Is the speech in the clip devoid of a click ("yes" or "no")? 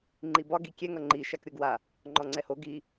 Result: no